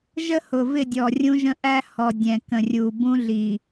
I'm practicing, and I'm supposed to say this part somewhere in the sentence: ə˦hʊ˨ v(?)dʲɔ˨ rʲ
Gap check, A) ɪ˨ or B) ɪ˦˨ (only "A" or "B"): B